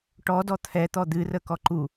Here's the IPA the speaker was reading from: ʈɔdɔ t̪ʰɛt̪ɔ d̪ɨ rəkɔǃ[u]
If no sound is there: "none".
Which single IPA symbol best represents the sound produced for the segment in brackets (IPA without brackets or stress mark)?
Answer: u